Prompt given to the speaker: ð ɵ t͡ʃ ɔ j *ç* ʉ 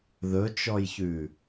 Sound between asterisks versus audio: correct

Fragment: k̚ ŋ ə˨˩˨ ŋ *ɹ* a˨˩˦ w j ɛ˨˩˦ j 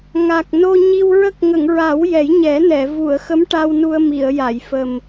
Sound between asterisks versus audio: correct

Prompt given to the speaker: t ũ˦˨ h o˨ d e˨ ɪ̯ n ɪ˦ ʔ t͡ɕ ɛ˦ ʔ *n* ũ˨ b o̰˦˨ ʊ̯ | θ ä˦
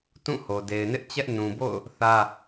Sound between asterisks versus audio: correct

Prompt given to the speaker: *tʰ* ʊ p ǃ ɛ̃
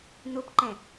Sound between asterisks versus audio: incorrect: n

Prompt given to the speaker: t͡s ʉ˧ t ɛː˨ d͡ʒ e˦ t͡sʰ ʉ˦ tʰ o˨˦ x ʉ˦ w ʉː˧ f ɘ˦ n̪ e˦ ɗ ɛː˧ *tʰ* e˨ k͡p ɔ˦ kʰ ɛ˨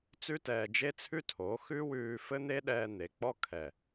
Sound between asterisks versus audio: incorrect: n̪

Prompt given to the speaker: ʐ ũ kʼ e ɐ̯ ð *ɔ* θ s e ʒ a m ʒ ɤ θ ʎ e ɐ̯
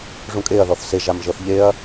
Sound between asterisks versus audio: correct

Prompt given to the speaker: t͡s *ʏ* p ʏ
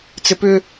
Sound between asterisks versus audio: incorrect: ɪ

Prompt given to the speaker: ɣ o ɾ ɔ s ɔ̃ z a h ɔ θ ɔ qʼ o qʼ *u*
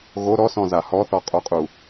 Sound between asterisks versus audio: correct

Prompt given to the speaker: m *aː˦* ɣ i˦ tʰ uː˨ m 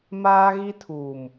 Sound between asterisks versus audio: correct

